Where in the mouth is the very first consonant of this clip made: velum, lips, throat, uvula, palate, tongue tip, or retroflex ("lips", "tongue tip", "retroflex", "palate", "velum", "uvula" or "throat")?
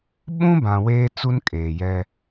lips